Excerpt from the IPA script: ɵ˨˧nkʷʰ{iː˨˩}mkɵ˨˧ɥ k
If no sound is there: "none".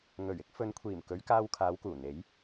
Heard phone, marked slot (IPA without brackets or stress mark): iː˨˩